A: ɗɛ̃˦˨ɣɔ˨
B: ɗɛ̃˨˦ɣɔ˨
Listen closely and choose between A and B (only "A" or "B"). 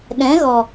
B